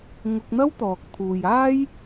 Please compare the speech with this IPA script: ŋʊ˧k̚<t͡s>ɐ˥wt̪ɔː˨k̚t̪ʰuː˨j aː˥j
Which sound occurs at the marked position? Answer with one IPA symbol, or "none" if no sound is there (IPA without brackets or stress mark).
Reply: n̪